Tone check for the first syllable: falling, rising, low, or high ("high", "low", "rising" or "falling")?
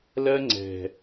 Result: high